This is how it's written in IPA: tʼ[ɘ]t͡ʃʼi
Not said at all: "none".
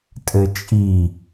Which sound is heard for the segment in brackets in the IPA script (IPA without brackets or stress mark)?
ɘ